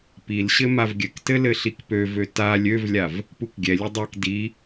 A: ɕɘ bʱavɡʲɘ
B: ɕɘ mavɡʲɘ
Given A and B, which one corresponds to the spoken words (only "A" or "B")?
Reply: B